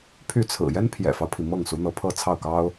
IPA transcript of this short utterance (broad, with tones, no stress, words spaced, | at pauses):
pʰy˥˩t͡sʰɹ̩˨˩ jɛ˥npʰjɛ̰˨˩fɑ˦ʊ̯pʰi˩ mɤ˥˩ŋsu˧˥n̪ɤ˧˥ pʰɤ˥˧t͡sʰɑ˥˩ʊ̯kɑ˥ʊ̯